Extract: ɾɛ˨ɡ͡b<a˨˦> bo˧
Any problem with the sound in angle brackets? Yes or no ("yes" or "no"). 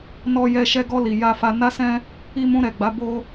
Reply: no